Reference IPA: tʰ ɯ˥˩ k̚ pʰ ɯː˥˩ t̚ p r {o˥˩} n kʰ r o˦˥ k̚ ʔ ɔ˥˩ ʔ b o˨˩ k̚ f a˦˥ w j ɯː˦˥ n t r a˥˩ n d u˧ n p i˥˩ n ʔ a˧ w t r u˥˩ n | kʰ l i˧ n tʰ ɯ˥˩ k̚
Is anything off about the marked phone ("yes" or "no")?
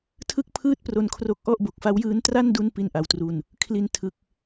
yes